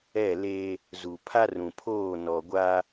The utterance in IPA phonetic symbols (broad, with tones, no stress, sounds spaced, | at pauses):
ɛ˦˨ l e˦ | z u˨ pʰ a˦ r ũ˨ pʰ oː˦˨ n ɔ˨ ɡʷ a˦